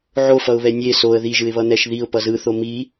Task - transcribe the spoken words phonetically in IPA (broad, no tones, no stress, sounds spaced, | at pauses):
ʕ o f ʌ ʊ̯ β ɛ nʲ e s o ə̯ ð i ʒ ɯ ɪ̯ β ʌ n̪ ɛ ʃ ð i ʊ̯ p ʌ z ɯ θ o m i